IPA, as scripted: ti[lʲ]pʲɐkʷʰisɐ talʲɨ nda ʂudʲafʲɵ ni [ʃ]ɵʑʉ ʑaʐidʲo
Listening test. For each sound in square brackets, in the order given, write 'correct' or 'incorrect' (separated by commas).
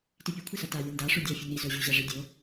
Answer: incorrect, incorrect